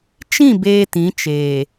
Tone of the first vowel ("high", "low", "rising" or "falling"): falling